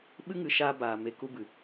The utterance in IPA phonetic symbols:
ɓ ɨ˦ ŋ ɨ˨ ʃ aː˧ b aː˧ m e˦ k u˦ b ɨ˨

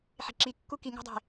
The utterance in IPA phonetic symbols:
ħ e̤ ǁ i kː u k i ŋ a̤ dˤ e̤

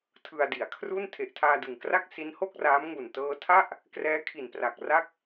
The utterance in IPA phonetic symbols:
tʰ ɯ˧ a̯ d i˩˦ a̯ kʰ r u˥˩ n tʰ e˨˩ ʔ tʰ aː˧ d ɯ˨˩ ŋ k r a˥˩ k̚ s i˦˥ n h o˥˩ k̚ r aː˦˥ m ŋ u˨˩ n t ɤː˧ tʰ a˥˩ ʔ | k r ɛː˦˥ kʰ i˨˩ n p r a˨˩ k̚ r a˦˥ k̚

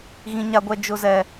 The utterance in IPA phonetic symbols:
ɣ ĩ˦ ɲ a˦ ɡʷ ɛ˦ d͡ʒ ʊ˦ z ɛ˦

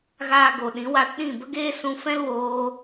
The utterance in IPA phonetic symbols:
ɣ aː˨ ɡ o˨ ɗ ĩ˨˦ w a˧ t ɗ ĩ˦˨ b ə˦ ɡ eː˦ s ũ˧ f ɛ̃˦ l w oː˧

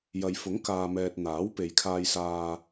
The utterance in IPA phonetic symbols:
j ɐ˨ j f ʊ˨˥ ŋ k aː˨ m ɛː˨ t̚ n̪ aː˨˥ w p e˨ j kʰ aː˧ j s aː˧

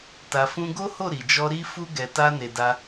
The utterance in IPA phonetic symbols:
t a˨ f ũ˧ ɡ o˦ h o˦˨ ɾ i˨ d͡ʒ ɔ˧ ɾ i˧ f u˧ ɡ ɛ˧ t a˦ n e˧ d a˧

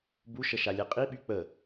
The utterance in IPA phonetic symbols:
b u ʃ ə ʃ a lʲ ɛ qʼ i ɓ y k͡p ə

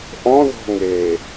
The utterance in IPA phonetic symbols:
ʔ ɔ̃ ð ɔ̤ ŋ e

